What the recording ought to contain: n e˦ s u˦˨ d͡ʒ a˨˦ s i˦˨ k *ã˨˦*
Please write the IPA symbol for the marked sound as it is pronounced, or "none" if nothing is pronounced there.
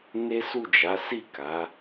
a˨˦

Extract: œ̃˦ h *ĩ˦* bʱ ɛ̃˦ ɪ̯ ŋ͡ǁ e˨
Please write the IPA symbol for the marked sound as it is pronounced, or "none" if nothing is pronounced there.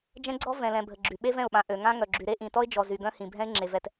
ĩ˨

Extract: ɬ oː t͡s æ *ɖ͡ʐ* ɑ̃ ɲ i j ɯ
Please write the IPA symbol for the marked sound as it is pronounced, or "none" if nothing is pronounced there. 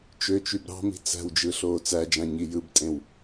d͡ʒ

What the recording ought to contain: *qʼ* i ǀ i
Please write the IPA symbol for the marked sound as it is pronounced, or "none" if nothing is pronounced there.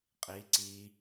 qʼ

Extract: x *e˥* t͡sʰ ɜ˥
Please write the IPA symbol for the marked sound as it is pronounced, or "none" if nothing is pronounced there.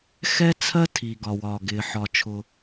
ɛ˥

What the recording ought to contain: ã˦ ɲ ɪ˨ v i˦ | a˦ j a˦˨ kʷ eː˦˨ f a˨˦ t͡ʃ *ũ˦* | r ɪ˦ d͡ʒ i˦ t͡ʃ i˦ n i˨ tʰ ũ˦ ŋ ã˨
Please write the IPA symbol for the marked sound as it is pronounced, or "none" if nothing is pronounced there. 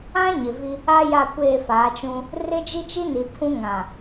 ũ˦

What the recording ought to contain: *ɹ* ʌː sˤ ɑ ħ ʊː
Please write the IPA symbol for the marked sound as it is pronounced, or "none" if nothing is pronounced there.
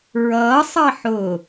ɹ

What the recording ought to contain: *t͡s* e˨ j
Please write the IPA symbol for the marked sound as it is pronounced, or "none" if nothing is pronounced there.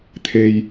t̪ʰ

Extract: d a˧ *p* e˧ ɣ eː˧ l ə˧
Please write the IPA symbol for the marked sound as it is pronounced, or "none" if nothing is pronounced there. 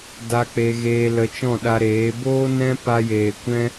k͡p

